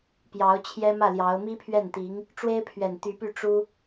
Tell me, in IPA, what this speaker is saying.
p j ɑ˧˥ ʊ̯ t͡ɕʰ j ɛ˥ m ä˥˩ l j ɑ˧˥ ʊ̯ m i˥ pʰ ɥ ɛ˥˩ n t̪ i˧˥ ŋ | ʈ͡ʂ w e˥ ɪ̯ pʰ ɥ ɛ˨˩ n t̪ y˧˥ p y˥˩ ʈ͡ʂ u˥

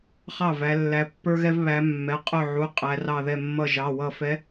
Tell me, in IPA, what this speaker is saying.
χ ɑ˥˩ v æ˨˦ lː æ˨˦ pː ə˞˦ ɣ ɛ˦ v β æ˨˦ mː ɛ˩˧˩ qʼ ʊ˥˩ ʕ u˩˧˩ qʼ æ˨˦ r ɑ˧˩ ð ɛ˧˩ mː ʌ˧˩ ʒ ɑ˩˧˩ w ʌ˧˩ f ɛ˨˦

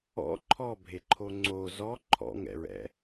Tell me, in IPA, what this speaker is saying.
ɔ̰ ǃʰ ɔ bʱ e ǃʰ o ŋ͡ǀ o z ɔ ǃʰ ɔ̰ ŋ ɛ̰ ɹ ɛ̰

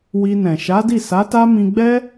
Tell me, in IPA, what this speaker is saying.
w i˧ n ɛ̃˨ ʃ a˨˦ d i˦˨ s a˨˦ t a˦ m ĩ˧ ɡ͡b ɛ˦

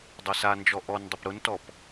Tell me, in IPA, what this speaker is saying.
dˤ ɛ s a n d͡ʒ ɔ ʔ ɔ n dˤ ʊ p ɾ ʊ n t ɔ p

